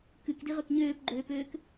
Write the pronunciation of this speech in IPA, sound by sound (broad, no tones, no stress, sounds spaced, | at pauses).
k ʉ k d i ʁ ø k ɲ øː p ɡ͡ǃ øː p øː k